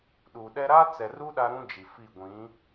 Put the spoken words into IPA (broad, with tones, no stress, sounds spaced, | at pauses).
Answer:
ɗ u˨ ɗ ɛ˦ ɾ a˦ t͡s ɛ˨ r u˦ ɗ a˦ ɾ ũ˦ d͡ʒ i˨ f i˦˨ ɡʷ ĩ˨˦